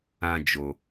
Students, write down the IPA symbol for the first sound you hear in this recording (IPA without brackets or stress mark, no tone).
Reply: ã